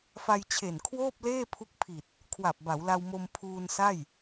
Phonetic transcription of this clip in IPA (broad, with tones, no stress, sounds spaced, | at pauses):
f a˧ j t͡ɕʰ e˨˩ n kʰ w oː˥˩ p̚ l eː˥˩ pʰ u˦˥ k̚ pʰ i˨˩ t̚ | kʰ w a˨˩ p̚ b a˩˦ w l a˧ w m o˧ m pʰ uː˧ n s a˥˩ j